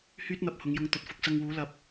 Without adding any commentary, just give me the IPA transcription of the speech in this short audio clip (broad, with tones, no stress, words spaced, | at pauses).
hyː˥t̚n̪ɐ˧p̚ hʊ˨˧ŋjʊ˧ŋ t̪ɵ˨t̚fʊ˧k̚sɐ˧ŋ wuː˨˥ lɐ˨p̚